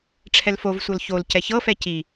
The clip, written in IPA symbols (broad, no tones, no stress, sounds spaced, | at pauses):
ʈ͡ʂʰ ɛ l f o v sʷ ɤ l ç o l c ɛ ç ɤ f ɛ c i